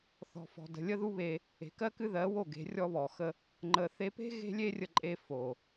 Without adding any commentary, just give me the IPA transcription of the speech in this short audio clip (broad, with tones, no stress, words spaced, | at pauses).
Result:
θɔ̤˨fɔ̤˨ də̤˨lʲə˦ ðu˦βe˧ | e̤˨kɜ˦kɨ˦ ðɜ˨˦wo˦˨ ɡe̤˨˦rʲɔ˦βɔ˨xə˦ | ŋ͡ǃə˧ θe˧pe̤˦ ɣe̤˦lʲe˦rʲə˧ǃʼe˧ fo˨